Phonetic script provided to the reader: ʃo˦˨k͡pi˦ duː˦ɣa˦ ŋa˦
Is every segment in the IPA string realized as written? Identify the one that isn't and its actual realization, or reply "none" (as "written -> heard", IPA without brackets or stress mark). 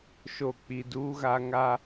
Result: none